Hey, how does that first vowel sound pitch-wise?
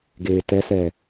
low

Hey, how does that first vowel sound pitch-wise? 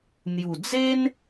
low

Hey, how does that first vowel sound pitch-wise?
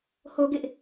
high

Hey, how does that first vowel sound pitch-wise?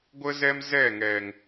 high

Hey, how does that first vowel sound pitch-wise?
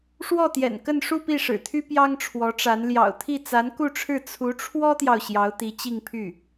falling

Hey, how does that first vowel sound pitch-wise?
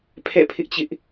falling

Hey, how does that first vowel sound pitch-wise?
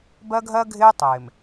high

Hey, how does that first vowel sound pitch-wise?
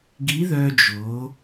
rising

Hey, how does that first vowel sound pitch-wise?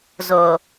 low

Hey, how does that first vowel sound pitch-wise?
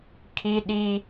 high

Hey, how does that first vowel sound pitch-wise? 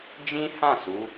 high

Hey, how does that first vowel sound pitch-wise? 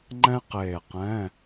high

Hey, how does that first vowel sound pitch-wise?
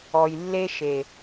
low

